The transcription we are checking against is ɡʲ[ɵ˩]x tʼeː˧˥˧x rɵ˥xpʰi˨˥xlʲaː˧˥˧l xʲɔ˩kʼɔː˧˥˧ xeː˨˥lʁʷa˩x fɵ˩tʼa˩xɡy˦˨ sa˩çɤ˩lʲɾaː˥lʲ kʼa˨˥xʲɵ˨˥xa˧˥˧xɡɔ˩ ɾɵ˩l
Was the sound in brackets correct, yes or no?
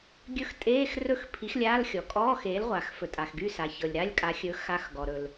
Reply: no